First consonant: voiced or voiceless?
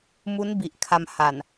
voiced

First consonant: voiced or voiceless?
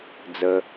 voiced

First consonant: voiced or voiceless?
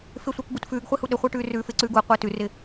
voiceless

